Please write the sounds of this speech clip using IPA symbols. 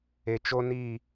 e˨t͡ʃo˦ni˦˨

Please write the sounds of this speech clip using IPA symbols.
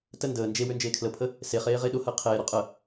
tə ndəː nd͡ʒe wønd͡ʒeːkʰləpʰə | seχeː ʁeɗʊhəː qʰeːɾo qʼə

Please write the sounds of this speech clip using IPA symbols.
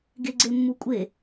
ɡeɡ͡ǀemːukʷʼe

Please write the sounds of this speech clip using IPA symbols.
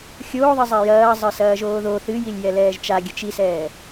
xʲoːðˤi zˤɛjɐːzˤɨ sɐːʒoːðo θɨjilʲjɛlɛːʒ t͡ʃaɡʲɐt͡ʃ isɛː

